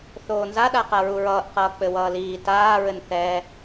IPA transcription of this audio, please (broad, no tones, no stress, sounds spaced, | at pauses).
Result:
θ oː n z a ɗ a q a ɹ u ɹ ʌː ʔ q ʌː k͡p ɘ w ʌː l iː t aː ɹ ɘ n θ ɛː